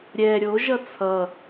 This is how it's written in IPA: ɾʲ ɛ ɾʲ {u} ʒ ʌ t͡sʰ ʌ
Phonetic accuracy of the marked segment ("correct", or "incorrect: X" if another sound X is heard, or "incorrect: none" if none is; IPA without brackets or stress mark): incorrect: o